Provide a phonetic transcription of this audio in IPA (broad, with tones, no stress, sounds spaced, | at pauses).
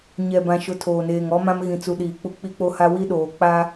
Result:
ɲ ɛ˨ b ã˨ ʃ ʊ˨ tʰ oː˨ n eː˨ ŋ ɔ˦ m ã˦ m ɣ ĩ˨ t͡s u˨ ɗ iː˨ k͡p u˨ k͡p i˦ k͡p o˦ h a˦ w i˦ ɗ oː˨ k͡p a˦